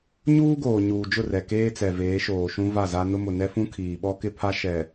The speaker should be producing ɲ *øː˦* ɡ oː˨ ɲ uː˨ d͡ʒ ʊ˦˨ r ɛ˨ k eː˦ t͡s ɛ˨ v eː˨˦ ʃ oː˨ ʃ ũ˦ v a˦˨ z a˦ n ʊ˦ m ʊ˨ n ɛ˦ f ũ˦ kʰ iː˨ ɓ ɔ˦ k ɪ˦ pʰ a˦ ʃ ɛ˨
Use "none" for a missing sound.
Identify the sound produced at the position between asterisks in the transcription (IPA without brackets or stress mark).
uː˦